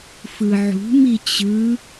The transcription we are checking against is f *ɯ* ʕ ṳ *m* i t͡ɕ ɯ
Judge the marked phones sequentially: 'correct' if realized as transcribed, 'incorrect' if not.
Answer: correct, correct

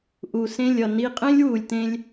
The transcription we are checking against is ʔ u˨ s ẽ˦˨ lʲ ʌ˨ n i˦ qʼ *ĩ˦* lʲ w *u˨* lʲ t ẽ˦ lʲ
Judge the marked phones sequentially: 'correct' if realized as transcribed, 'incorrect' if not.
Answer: incorrect: ẽ˦, correct

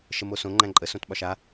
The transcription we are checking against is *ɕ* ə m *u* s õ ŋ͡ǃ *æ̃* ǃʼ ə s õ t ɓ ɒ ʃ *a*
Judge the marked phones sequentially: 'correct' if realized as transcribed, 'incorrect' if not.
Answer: incorrect: ʃ, incorrect: o, correct, correct

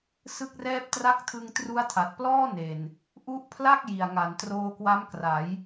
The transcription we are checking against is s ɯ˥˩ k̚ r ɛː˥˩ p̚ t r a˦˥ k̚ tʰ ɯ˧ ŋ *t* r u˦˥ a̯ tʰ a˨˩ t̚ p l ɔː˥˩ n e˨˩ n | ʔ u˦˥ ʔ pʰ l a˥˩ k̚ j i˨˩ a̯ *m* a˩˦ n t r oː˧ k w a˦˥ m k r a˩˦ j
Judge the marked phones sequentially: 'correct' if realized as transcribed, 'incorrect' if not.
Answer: correct, incorrect: ŋ

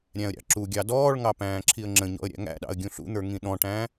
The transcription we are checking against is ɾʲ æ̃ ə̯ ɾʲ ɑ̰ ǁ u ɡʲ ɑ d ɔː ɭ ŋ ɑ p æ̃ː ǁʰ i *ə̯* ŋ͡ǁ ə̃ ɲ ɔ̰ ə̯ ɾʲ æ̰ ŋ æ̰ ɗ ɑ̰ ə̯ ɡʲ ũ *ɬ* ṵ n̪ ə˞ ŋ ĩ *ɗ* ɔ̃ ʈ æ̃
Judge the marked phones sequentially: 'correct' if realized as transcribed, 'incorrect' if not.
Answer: correct, correct, correct

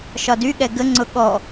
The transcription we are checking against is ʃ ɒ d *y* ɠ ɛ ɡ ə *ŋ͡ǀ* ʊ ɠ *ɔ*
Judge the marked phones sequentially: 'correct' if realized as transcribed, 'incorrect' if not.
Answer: correct, correct, correct

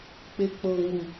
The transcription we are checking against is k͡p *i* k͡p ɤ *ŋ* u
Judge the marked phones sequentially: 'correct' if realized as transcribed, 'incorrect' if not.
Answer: incorrect: e, correct

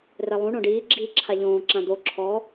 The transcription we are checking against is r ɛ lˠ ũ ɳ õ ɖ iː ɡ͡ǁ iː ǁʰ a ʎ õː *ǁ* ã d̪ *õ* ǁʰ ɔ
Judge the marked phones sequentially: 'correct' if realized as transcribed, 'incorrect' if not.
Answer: correct, incorrect: o

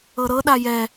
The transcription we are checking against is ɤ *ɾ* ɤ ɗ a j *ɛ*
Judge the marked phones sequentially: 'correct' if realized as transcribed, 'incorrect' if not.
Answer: correct, correct

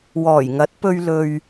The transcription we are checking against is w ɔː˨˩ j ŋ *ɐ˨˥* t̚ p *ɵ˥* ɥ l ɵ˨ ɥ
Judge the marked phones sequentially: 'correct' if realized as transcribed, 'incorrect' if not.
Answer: correct, incorrect: ɵ˧

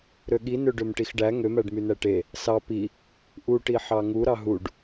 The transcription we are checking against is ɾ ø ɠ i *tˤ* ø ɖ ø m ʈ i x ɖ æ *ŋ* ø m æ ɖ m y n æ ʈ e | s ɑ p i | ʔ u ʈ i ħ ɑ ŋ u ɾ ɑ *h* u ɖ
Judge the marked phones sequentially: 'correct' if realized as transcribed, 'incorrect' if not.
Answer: incorrect: n, correct, incorrect: ɦ

